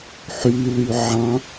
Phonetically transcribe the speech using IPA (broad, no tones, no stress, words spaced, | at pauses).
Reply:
ħyly ʕɑ̃